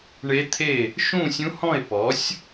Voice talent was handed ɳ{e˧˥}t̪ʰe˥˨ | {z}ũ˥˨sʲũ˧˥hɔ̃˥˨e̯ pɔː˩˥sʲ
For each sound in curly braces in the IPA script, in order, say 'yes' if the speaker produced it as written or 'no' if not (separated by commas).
yes, no